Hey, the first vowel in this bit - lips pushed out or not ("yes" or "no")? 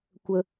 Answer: no